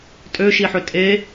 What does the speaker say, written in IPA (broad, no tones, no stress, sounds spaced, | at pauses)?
tʼ ø ʃ i ħ ø tʼ e